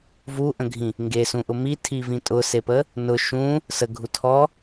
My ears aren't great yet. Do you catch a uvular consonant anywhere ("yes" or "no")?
no